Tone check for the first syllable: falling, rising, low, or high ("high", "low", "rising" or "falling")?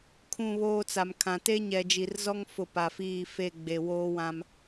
falling